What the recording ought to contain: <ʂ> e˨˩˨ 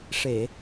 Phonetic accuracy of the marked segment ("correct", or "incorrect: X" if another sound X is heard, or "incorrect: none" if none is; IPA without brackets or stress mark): correct